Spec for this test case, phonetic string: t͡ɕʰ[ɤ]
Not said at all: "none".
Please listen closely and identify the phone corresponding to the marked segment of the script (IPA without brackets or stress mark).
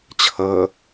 ɤ